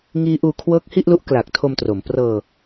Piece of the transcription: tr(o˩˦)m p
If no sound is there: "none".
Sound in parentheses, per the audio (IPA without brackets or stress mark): o˩˦